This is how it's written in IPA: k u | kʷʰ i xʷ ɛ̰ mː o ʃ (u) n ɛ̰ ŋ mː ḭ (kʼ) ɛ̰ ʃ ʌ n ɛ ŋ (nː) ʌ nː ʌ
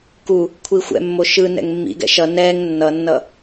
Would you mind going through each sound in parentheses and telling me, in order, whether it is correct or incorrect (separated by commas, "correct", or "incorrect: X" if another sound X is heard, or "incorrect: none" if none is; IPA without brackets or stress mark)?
incorrect: ɯ, incorrect: ɡ, correct